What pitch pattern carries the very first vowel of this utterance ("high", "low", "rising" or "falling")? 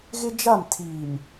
high